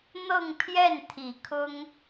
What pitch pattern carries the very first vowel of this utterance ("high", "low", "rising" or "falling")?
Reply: falling